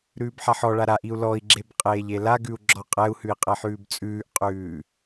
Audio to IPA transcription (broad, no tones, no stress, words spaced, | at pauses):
ɾʉːbħaħɔɭa ɾaʔiu̯ lɔi̯ɡ͡ǁeb qʼeːʎelaɡʉu̯ ɡ͡ǁɔqʼɛu̯hʉi̯ qʼɛħʉːbt͡sʼʉːʔqʼʉː